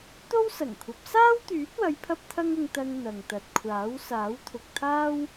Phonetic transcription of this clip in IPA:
t̪ o˥ w s ɐ˨˩ ŋ kʷʰ ɐ˨˥ p̚ s aː˥ w t̪ yː˨˥ t̚ w ɐ˨˧ j pʰ ɐ˧ p̚ t̪ʰ ɐ˥ ŋ ʊ˧ ŋ t̪ ɐ˧ ŋ n̪ ɐ˨ ŋ t̪ ɐ˨ t̚ kʷʰ aː˨˥ w s aː˨˥ w t̪ʰ ʊ˨ k̚ t̪ʰ aː˥ w

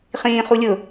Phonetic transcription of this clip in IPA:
χ ĩː χ u lʲ ʊ

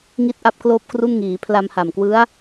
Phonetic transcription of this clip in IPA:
ŋ i˥˩ t̚ ʔ a˥˩ p̚ k l oː˥˩ p̚ k r u˥˩ n ŋ iː˩˦ pʰ l a˧ m h a˨˩ m k w ɯ˦˥ a̯

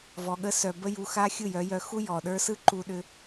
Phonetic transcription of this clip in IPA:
v ɔ˧ ɠ ə˦ s œ˧ b ə˦ j u˧ x a˦ xʲ ɯ˦˨ j œ˨˦ j œ˧ x u˦ j ɔ˨ ɗ ə˞˦ s ɯ˦ ǃ u˧ ɗ ʏ˧

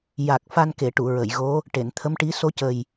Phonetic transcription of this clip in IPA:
j a˨˩ k̚ f a˧ n k e˨˩˨ ʈ u˨˩˨ ɹ ə˨˩˨ j ɣ o˧˥ | ʈ e˨˩˨ n t̪ʰ ə˧˥ m ʈ i˧˥ s o˧˥ c ə˨˩ j

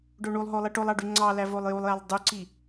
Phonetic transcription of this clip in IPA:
ɖ o ɳ u lˠ ɦ o lˠ i ʈ o lˠ ɑ ɖ y ŋ͡ǀ ɑ l æ v o lˠ j u lˠ j æ lˠ dˤ y ǀ i

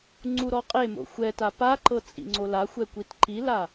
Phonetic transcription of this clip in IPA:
ŋ͡ǀ u ɾ ɔ qʼ e m o̰ xʷ ɛ t a p a ǃ ɤ t͡sʼ ḭ ŋ͡ǀ o l a xʷ ɛ kʷ i t ǃ i l a

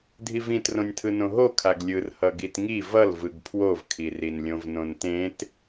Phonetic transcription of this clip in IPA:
dʱ i v ĩ t r õ nʲ tʰ ɯ n õ ɦ o kʰ a ɡ lʲ ɯ r h ʌ ɡ i t ŋ i v ʌ l v ɯ ɡ pʰ w o v kʰ i r i n lʲ õ v n õ n t ẽ t

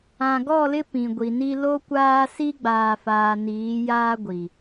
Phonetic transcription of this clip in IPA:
ã˨ ɡ ɔ˦˨ l ɪ˦ p ĩ˨ ɡʷ i˨ n i˦ l o˦ kʷ aː˦ s i˦ ɡ͡b aː˨ f aː˨ n iː˨˦ j aː˦ ɡʷ i˨

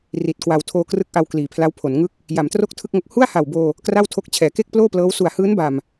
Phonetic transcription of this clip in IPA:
r i˨˩ t̚ k w a˧ w tʰ oː˧ k r ɯ˦˥ k̚ ʔ a˧ w k l iː˩˦ pʰ l a˦˥ w pʰ o˩˦ n ŋ ɯ˥˩ k̚ | j a˩˦ m t r o˥˩ k̚ tʰ ɯ˥˩ k̚ ŋ o˦˥ k̚ h u˥˩ a̯ h a˨˩ w b oː˧ | k r a˥˩ w tʰ o˦˥ k̚ t͡ɕʰ ɛː˩˦ k e˥˩ k̚ p l oː˥˩ p l ɤː˦˥ w s u˨˩ a̯ h ɯː˦˥ n b a˨˩ m

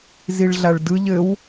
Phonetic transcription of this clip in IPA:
z i ɭ ɮ a ɭ d ɯ ʎ ɘ w

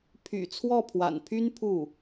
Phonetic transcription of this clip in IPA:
pʰ y̰˨˩ t͡sʰ w ɔ˥˩ pʰ w a̰˨˩ n pʰ y˥ n pʰ u˥˩

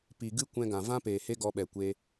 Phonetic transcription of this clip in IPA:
p i˨ ɡ ɨ˦ kʷ ɛ̃˧ ɡ ã˨ v ã˦ p eː˨ h e˦ ɡ ɔ˧ ɓ ɛ˨ kʷ e˧

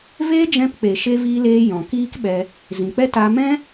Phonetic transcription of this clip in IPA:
v eː˦ d͡ʒ ɛ̃˧ p k͡p e˨ ʃ e˧ v iː˧ l eː˧ j ɔ̃˨ k iː˦ k ɓ ɛ˧ | z ĩ˨ k͡p ɛ˦ t a˧ m ɛ̃˦

